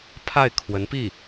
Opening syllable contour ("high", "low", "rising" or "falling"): falling